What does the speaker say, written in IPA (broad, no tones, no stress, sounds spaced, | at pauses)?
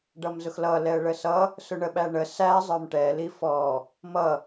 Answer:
ɖ ʌ m z ʊ x l ʌ l ɛ ə̯ ɭ ə s ʌ | s ʊ ɳ ə ɓ æ ɳ ə s æ zˤ ə˞ m ʈ ɛ l i f ɔ | m ʌ